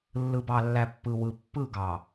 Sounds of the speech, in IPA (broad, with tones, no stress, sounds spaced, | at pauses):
lː ɯ˨ b ɑ˨ lː æ˨ pː ɯ˨ w ɯ˨ pː ɯ˦˨ ɡ ɑ˨